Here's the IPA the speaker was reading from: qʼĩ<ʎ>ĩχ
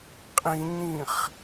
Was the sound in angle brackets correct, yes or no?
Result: no